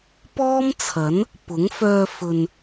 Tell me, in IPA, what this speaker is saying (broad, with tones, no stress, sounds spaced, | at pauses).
p ɔː˥ m t͡sʰ ɐ˨˥ n | p ʊ˨˥ ŋ f œː˧ f ɵ˨ n